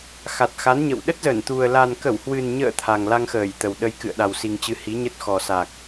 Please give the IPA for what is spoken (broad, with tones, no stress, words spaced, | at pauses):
xa˨˩t̚xa˨˦nɲə̰˧˨w ɗə˦˥t̚zə˧˩nt̪u˨˩ə̯ la˨˩nkə˧˩whwɨ˨˩nɲə̰ː˧˨ t̪ʰa˨˩ŋla˧ŋxəː˧˩j t̪ə˨˩wɗə˧j kɨ̰˧˨ə̯ɗa˨˩wsi˨˩ŋt͡ɕɨ˨˦ hi˨˦ɲə˦˥t̚xɔ˨˩ sa˨˩k̚